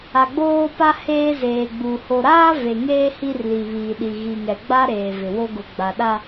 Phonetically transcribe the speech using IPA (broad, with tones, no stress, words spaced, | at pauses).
a˨ɡ͡boː˦pa˦ heː˦zeː˨ɡ͡bu˨ ho˨ɾaː˦ ve˨ŋeː˦ hi˦rli˨βiː˨ɗi˨ ɣi˨ŋɛ˨ɡ͡ba˦ ɾeː˨vɪ˨wo˦ ɡʊ˨ ɡ͡ba˨ɗa˦